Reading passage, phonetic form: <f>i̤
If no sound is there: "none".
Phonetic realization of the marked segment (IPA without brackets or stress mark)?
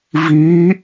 v